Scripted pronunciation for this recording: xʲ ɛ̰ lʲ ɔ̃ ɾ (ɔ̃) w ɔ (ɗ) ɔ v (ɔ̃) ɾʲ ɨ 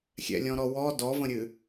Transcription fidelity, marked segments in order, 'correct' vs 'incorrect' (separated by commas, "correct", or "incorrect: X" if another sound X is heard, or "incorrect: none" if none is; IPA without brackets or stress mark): incorrect: ɔ, incorrect: d, incorrect: ə̃